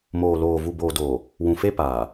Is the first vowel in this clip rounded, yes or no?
yes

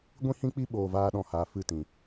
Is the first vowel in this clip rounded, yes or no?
no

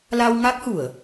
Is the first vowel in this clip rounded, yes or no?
no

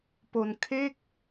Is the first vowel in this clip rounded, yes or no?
yes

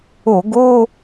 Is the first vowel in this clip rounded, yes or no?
yes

